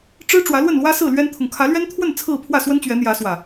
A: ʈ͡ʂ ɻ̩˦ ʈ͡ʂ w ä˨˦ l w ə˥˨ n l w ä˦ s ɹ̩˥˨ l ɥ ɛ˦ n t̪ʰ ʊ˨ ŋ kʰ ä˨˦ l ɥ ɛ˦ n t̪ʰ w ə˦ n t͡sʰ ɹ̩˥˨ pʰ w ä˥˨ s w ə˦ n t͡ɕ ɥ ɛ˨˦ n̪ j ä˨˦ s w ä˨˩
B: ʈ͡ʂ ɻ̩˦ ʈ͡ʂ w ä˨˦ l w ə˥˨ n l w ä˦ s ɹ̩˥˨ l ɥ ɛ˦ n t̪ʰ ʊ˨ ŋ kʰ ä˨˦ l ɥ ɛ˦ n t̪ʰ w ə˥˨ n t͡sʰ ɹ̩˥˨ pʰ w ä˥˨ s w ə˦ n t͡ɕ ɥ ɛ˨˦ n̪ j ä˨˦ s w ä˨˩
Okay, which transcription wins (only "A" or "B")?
B